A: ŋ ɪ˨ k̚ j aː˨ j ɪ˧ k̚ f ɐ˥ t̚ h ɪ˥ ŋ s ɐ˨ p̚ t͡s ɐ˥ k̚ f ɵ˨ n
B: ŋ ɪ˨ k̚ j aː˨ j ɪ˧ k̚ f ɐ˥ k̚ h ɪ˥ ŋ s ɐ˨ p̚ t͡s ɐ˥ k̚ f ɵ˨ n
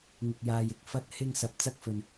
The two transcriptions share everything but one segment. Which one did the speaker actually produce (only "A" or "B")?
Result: A